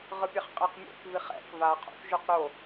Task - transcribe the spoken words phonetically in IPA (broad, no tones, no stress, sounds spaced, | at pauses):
ʁ ɯ pʲ ɛ χ qʼ ɛ q mʲ ɛ̰ k v i χ ɛ̰ k v a qʰ o̰ θ ʒ ʉ q ɾ o